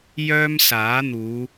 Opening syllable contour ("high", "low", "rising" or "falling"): high